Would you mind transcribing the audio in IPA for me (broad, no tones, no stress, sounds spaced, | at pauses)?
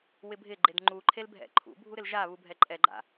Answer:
w ɪ bʱ ɪ ɡ͡ǃ e d ŋ͡ǃ u ǃʰ e l bʱ ɛ̰ ǃʰ ṵ bʱ u ɾ ɪ l ʒ a β u bʱ ɛ ǃʼ ɛ ɡ͡ǃ a̰